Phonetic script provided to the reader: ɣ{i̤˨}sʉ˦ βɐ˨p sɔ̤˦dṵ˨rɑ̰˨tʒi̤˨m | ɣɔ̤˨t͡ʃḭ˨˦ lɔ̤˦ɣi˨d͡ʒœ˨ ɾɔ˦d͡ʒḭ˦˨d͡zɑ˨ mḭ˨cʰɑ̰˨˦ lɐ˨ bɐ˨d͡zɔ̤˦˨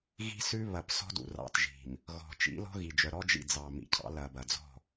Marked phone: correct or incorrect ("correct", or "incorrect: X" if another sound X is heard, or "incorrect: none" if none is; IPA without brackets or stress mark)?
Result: incorrect: i̤˦